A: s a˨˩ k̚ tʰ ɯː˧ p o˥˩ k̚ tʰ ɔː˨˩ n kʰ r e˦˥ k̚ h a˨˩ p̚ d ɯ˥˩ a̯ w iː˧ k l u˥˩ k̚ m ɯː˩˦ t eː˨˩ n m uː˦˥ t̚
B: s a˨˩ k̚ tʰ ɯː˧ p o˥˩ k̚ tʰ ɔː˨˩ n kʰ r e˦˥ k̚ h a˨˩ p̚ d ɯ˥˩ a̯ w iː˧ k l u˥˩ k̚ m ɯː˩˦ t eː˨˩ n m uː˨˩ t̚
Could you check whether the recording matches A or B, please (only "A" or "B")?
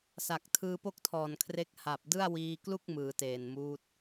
A